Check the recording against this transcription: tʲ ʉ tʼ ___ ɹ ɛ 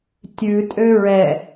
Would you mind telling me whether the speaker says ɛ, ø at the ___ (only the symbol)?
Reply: ø